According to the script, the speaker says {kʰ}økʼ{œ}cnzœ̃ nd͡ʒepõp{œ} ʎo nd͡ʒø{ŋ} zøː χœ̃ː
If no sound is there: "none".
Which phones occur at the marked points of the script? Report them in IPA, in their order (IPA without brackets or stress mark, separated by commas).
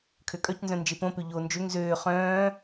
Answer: kʰ, œ, ø, ŋ